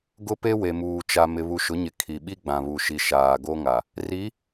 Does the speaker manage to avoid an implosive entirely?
no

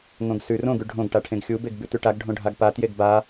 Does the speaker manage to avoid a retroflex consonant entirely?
no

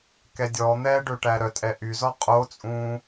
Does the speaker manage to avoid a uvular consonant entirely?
no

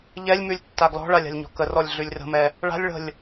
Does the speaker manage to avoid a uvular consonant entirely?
yes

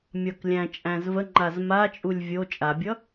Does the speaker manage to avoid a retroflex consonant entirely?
yes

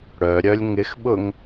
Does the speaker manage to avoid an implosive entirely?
no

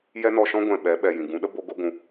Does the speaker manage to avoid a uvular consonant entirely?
yes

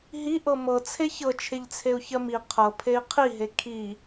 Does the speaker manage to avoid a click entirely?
yes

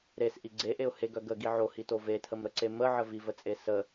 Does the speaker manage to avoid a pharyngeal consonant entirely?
no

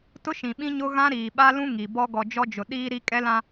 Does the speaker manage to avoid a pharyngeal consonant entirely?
yes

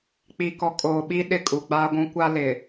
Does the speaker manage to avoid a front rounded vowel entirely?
yes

